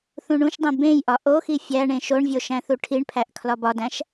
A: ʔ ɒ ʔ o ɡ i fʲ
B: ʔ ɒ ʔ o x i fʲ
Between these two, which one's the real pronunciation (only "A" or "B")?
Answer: B